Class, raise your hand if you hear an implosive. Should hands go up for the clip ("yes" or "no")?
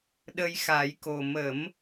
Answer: yes